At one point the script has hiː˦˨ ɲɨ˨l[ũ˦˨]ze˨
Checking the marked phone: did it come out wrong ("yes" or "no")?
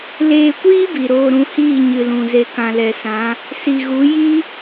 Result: yes